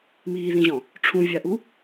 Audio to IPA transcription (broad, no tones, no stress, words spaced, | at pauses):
miːðĩʑɔ̃ | ʈ͡ʂʰũvʲaʔu